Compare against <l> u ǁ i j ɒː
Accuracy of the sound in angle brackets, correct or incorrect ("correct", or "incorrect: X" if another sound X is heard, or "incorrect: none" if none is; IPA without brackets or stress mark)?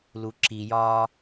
correct